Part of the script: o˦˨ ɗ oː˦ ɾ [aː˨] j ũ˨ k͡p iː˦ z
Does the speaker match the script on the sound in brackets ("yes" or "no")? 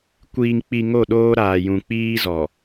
yes